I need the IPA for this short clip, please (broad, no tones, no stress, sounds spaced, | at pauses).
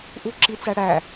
ʔ u ǁ i t͡s æ ɽ æ